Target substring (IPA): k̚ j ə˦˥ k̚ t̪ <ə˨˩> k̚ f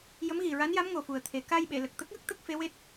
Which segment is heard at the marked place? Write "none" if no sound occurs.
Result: ə˦˥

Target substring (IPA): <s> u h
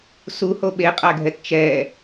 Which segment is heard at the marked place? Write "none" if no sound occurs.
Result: s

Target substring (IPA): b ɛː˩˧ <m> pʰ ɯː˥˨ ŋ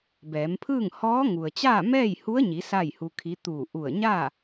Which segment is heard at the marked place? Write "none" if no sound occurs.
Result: m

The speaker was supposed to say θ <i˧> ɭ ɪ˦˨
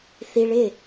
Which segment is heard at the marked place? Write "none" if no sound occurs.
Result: i˧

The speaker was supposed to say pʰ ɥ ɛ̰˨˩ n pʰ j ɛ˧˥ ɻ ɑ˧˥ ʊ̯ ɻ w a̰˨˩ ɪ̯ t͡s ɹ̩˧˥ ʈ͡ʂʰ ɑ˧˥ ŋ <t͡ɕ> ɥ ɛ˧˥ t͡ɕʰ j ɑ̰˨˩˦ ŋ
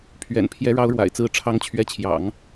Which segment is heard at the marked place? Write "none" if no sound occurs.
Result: t͡ɕʰ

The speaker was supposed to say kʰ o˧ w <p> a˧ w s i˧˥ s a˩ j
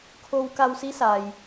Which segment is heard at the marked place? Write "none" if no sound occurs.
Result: k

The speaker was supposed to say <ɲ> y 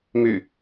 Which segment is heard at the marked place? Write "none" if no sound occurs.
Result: m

